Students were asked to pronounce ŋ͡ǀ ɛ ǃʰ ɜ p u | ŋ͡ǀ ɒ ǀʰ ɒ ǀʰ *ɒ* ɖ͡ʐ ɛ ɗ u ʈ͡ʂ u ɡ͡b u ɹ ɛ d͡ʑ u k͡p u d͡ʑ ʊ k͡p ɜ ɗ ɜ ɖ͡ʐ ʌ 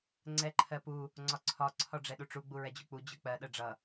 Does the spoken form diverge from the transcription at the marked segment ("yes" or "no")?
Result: no